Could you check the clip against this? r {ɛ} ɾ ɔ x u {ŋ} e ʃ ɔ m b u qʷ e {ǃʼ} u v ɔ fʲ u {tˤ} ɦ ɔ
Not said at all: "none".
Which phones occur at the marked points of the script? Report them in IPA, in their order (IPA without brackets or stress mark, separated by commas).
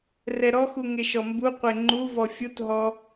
ɛ, ŋ, ŋ͡ǃ, t